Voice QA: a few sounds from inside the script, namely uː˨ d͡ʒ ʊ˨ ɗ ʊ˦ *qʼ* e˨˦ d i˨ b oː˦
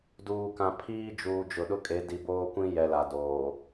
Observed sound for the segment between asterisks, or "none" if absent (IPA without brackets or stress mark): kʼ